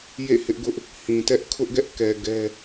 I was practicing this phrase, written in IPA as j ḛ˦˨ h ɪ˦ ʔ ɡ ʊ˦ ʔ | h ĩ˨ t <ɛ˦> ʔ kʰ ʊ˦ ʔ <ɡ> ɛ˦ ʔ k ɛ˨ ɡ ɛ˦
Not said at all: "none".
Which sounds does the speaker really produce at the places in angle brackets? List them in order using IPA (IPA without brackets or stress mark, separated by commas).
ɛ˦, ɡ